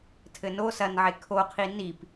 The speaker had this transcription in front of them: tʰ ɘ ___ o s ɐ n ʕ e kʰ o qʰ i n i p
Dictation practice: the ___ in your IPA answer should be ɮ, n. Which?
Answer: n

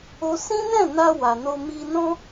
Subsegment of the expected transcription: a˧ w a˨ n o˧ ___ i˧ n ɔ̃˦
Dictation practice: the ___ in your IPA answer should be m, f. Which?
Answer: m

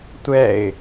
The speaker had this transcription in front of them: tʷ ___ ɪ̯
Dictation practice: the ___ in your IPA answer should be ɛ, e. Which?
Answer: ɛ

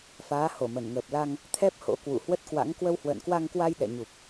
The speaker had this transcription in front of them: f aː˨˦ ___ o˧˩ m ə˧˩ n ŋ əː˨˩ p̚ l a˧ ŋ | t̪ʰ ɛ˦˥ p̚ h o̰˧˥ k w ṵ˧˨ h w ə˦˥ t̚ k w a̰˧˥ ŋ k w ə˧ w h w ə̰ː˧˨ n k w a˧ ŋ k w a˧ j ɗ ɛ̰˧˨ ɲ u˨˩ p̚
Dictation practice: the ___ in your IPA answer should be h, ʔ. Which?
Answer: h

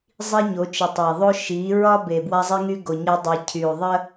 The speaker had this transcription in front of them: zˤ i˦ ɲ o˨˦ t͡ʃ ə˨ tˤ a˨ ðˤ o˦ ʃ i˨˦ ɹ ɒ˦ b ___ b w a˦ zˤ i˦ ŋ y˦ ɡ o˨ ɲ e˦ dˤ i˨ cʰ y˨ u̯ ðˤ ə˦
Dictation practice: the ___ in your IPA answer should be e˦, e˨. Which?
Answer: e˨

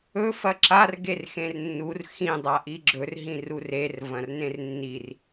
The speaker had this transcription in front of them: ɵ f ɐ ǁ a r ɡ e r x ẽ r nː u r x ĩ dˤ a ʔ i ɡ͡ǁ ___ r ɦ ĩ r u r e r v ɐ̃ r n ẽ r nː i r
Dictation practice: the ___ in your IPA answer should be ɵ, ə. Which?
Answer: ɵ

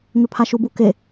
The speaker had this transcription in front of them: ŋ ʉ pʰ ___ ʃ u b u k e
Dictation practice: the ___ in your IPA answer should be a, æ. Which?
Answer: a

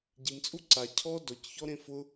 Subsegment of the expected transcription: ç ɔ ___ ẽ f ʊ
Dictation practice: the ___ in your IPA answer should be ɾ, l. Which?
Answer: ɾ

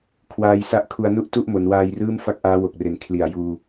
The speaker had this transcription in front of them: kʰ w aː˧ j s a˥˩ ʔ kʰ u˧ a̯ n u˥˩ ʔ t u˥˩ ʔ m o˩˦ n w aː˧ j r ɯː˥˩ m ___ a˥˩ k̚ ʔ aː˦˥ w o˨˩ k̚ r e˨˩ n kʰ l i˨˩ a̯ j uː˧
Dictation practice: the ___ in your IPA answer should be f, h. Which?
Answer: f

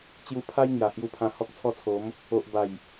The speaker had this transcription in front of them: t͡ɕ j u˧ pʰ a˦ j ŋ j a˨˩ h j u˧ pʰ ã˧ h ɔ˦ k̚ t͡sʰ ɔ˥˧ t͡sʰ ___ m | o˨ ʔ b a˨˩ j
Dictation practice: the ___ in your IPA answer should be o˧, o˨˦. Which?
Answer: o˨˦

